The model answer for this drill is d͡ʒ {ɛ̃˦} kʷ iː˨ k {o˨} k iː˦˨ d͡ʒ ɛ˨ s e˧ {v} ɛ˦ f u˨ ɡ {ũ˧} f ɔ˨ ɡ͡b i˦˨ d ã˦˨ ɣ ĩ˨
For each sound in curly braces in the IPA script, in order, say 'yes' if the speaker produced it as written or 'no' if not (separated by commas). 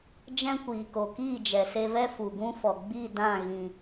yes, yes, yes, no